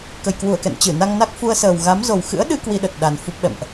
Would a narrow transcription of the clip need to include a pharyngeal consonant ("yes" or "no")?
no